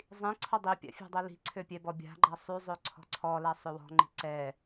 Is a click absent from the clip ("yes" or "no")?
no